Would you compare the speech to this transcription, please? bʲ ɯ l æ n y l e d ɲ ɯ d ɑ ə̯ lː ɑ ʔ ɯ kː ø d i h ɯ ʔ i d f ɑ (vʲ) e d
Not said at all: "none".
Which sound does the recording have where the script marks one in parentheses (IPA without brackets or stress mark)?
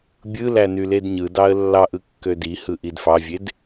vʲ